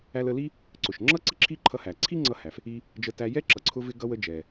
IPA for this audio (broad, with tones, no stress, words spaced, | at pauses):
æ˧lə˧li˥ | ǀʊ˩ʃŋ͡ǁʌ˥ ǀɪ˥ǁʰi˥ǃʰʌ˧hæ˩ ǀʰi˥ŋ͡ǀʌ˧hæ˩f | i˧ | d͡ʒə˧tæ˧jɛ˥ ǁʌ˩ǀʰʊ˧vɪ˧ ɡʌ˧wə˧d͡ʒɛ˩